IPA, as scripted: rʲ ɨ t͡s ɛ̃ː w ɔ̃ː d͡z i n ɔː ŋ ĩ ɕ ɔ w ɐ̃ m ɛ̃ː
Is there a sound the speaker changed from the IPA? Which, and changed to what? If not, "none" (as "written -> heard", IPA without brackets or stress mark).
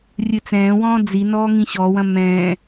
none